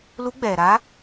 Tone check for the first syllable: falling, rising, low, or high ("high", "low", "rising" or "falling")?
rising